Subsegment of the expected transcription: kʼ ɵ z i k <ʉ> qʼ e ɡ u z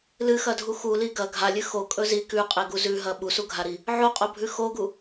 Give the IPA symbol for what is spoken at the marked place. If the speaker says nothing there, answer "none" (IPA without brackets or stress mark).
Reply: ʉ